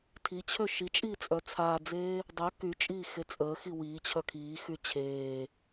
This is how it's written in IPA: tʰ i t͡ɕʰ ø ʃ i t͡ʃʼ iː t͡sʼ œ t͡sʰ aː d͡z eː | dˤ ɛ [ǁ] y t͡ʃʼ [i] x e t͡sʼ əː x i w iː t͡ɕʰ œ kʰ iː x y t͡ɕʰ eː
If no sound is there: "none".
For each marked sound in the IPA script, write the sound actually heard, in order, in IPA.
k, iː

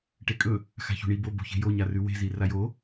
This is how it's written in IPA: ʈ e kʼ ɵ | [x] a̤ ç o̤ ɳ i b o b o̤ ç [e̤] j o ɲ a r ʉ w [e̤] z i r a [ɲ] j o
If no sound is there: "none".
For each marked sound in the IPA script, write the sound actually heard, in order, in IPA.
x, e̤, e̤, none

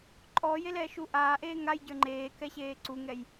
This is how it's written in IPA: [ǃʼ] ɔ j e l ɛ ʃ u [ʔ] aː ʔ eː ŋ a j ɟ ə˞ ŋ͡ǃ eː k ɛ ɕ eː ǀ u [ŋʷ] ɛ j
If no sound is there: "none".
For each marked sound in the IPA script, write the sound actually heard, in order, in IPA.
ǃʼ, ʔ, ŋ

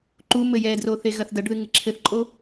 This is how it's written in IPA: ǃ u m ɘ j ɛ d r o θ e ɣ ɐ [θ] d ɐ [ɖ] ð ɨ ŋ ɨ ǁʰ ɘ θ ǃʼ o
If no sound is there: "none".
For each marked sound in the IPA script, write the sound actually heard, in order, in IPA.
θ, ɖ

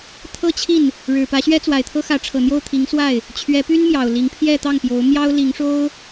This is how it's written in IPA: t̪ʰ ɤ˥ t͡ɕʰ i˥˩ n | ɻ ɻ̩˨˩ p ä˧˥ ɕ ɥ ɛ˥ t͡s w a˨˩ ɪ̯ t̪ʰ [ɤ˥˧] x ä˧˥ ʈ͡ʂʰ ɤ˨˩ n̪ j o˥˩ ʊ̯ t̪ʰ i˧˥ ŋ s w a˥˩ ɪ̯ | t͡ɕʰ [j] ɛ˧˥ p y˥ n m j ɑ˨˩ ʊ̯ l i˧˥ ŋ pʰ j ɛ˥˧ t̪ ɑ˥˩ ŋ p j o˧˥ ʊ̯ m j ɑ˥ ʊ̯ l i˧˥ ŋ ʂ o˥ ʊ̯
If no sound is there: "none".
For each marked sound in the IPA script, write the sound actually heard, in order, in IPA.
ɤ˥, ɥ

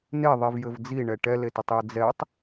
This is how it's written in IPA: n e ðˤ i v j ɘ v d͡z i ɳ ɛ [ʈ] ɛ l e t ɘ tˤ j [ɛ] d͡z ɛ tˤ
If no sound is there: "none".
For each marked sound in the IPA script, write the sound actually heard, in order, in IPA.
ʈ, ɘ

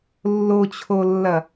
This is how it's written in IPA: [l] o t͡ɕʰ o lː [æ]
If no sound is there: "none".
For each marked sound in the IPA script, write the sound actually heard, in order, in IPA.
lː, ɐ

